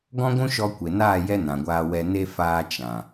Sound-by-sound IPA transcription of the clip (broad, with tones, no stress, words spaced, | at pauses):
ɡɔ̃˦ɡʷũ˦ʃɔ˧ kʷe˨naː˦˨ jɛ˦nã˨ɡʷaː˧ wɛ˨ne˧ faː˧ t͡ʃã˨